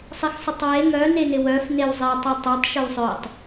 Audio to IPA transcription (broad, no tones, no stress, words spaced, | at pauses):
sˤɪxsˤɪtˤwe ŋœ nenɪwœf newzˤe tˤotˤœtˤ ʃœwsˤœtˤ